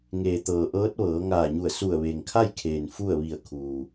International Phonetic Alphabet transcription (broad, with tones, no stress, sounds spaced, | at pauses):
ŋ eː˩ t̪ ɤː˩ ʔ ɤː˧˥ t̚ ʋ ɤː˩˧ ŋ aː˧˩ ɲ u˧˩ ə̯ s u˧˩ ə̯ ʋ e˩ ŋ kʰ a˥˨ j kʰ eː˩ n f u˥˨ ə̯ ʋ i˧˩ ə̯ kʰ uː˩